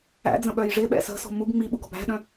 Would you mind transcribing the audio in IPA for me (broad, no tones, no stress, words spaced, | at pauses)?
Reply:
æ̰d͡zə̃ɓœj ʐɪɓɛ̰ sə̤sɔ̤ muɡ ŋ͡miɓuɡɔ̤b æ̤ɗœ̃